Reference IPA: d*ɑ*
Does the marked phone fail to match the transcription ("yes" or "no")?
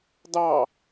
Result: no